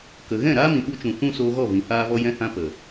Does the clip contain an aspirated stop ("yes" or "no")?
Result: no